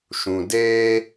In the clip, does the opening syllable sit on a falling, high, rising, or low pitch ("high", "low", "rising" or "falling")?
low